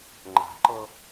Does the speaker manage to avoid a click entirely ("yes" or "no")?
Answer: no